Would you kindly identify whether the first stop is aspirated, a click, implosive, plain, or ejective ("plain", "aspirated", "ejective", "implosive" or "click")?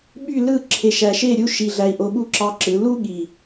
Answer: implosive